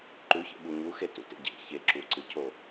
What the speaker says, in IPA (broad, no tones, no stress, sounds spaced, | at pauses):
ǃ ʉ ç ḛ ɓ u ɲ u x e t ṵ t ḛ ɟ ḛ ç e ǁ u ǀ ɨ cʰ o